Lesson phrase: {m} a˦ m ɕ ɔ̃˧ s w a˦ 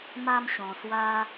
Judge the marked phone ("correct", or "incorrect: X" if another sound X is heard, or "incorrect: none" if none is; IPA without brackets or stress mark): correct